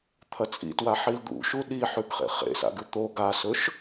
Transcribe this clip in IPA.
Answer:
t̪ʰɐt͡sʼḭtwa ħild̪ṵʃu ɗiħʉɡχḛ χḛsa̰ɡɨ t̪o ɡasɵʃ

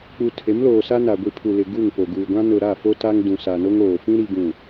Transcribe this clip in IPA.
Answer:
k͡pu˨tʰe˨˦mloː˨sa˦ na˨ɡʷi˨pʰu˨ lɪ˨ ɡu˦˨ŋpo˨ ɡuː˨ɡʷã˦ nʊ˨ɾa˦˨ fo˦ta˦ŋ dũ˨ sa˨no˦ŋoː˨ fĩ˦ ɾi˦ɡũ˦˨

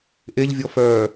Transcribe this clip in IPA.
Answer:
ʔeʎvʲɔ fœː

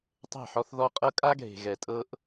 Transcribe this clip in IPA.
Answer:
tˤe̤˦˨ħɔ˦θ ðɔ˦qʼɤ˦ kʼa˦ɡʱe̤˨ɣɛ˨ tʼɤ˦ʔ

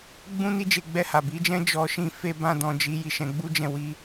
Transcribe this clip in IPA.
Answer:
ɡ͡bũ˦ ni˦d͡ʒe˧ɡ͡bɛ˧ha˨ bi˨˦d͡ʒɛ̃˦ d͡ʒɔ˧ʃĩ˧ fe˧bã˧dɔ̃˨d͡ʒi˨˦ ji˧ʃɛ̃˧ɡ͡bu˦d͡ʒɛ̃˦˨ wi˧

